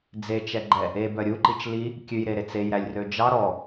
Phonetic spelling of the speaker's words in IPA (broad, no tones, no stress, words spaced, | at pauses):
d͡zet͡ʃɛɡ͡ǃɛ | ebœ ɾʲuǃit͡ʃ li | kʲʉjɾeɾe t͡sejɾælʲrø d͡ʒɑ ɾɔ